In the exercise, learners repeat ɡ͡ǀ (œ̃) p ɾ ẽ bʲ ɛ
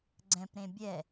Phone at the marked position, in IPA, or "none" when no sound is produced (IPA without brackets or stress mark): ɛ̃